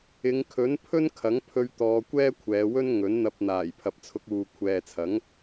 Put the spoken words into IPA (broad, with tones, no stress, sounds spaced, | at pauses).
ɪ˨˧ ŋ kʰ ɵ˨˥ n pʰ ɵ˥ n kʰ ɐ˨˥ ŋ pʰ ɵ˧ ɥ t̪ ɔː˧ kʷ ɛː˥ kʷʰ ɛː˨˧ w ɵ˥ n ŋ ɵ˨˥ n n̪ ɐ˧ p̚ n̪ aː˨˩ j pʰ ɐ˨ p̚ t͡sʰ ʊ˧ k̚ uː˨ kʷʰ ɛː˨ t͡sʰ ɐ˨˥ ŋ